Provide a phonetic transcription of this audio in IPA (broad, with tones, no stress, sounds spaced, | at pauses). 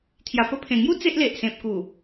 t̪ʰ j a˨˩ p ə˧ pʰ ẽ˨˩ ŋ j u˦ t͡s e˦ ʔ l e˨ ʔ s ẽ˨ p̚ k u˨˩